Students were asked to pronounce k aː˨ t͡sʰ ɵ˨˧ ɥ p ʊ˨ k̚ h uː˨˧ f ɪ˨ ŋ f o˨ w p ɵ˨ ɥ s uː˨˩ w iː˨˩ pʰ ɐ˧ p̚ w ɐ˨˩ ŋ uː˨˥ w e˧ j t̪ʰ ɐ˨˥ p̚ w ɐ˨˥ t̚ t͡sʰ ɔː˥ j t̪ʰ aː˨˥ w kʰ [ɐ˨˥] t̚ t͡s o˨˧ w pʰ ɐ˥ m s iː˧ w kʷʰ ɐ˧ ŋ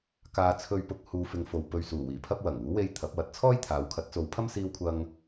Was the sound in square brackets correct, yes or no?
yes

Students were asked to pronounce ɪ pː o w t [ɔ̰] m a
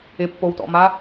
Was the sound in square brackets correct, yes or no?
yes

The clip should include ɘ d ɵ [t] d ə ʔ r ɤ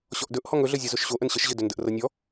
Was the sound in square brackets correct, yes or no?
no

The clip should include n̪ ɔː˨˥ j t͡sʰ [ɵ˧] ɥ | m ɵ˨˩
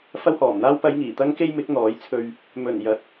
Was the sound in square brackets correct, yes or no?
yes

